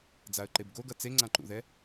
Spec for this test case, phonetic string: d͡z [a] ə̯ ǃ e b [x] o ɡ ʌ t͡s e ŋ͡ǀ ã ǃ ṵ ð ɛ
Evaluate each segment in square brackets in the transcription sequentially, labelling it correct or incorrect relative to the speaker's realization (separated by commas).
correct, incorrect